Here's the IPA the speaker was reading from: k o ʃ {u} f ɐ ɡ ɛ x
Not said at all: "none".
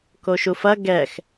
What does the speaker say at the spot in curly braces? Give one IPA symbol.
u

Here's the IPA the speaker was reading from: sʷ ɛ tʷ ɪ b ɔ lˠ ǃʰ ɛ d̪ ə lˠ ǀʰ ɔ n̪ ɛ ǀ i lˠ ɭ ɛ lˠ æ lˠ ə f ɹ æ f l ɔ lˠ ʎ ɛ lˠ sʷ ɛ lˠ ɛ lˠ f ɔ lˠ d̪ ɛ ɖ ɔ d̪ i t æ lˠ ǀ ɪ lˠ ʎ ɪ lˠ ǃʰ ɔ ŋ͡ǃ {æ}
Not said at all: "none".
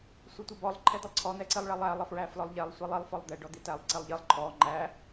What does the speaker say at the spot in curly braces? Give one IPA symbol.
æ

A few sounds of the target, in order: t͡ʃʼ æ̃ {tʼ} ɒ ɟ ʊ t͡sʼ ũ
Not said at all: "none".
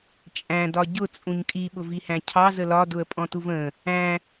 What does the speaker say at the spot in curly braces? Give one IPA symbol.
d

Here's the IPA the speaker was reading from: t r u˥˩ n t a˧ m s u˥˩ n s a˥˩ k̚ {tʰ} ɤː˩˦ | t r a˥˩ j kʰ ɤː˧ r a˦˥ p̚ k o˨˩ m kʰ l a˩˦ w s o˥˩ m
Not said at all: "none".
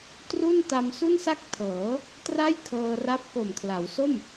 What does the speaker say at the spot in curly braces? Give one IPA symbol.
tʰ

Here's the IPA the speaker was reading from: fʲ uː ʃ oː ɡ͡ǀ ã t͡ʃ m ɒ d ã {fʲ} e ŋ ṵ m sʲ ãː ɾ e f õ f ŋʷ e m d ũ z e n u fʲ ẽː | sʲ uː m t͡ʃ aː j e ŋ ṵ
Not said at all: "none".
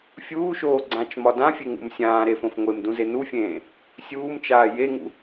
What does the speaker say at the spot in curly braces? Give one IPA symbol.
fʲ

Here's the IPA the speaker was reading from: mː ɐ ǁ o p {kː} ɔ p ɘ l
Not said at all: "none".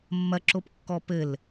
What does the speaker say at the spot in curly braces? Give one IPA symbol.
kː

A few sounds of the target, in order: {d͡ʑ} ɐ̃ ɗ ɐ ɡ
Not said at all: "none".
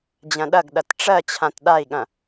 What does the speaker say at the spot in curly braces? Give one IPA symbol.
d͡ʑ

